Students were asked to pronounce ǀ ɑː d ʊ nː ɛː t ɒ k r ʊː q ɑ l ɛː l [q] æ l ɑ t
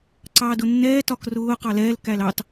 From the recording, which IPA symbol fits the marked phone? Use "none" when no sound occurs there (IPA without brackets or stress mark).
k